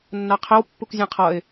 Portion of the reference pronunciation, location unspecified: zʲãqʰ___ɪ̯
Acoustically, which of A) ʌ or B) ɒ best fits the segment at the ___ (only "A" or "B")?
A